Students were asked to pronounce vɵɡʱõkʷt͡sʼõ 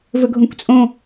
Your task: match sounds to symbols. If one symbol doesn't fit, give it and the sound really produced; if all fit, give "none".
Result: none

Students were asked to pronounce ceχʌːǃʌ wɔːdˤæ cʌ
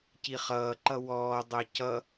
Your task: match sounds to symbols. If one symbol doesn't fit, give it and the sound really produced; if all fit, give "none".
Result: e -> i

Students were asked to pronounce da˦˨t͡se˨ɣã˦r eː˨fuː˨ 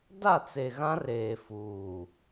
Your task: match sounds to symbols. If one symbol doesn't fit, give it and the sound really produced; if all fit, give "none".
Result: none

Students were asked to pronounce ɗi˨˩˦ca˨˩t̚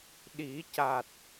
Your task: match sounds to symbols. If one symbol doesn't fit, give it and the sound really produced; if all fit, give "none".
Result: none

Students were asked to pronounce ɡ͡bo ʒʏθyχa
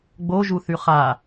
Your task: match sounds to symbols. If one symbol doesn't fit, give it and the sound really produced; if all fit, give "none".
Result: ʏ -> u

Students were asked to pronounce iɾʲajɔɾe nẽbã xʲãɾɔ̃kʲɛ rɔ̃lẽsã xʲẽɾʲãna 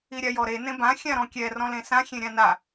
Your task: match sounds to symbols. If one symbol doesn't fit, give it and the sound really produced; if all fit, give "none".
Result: none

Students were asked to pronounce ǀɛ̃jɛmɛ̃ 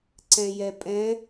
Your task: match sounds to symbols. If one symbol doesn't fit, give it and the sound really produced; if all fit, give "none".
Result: m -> pʼ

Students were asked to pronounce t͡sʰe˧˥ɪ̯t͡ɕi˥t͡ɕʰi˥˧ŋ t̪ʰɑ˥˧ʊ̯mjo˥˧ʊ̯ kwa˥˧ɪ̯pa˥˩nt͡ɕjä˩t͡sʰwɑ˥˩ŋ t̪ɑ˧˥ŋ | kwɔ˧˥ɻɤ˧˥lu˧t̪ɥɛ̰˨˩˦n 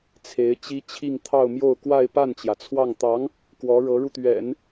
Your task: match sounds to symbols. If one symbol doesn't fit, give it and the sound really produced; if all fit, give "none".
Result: l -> ɻ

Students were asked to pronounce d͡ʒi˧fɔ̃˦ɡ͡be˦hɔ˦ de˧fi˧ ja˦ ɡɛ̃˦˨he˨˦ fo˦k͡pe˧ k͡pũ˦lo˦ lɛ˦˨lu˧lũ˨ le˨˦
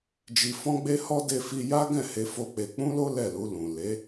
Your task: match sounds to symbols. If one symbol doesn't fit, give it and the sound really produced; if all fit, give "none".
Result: none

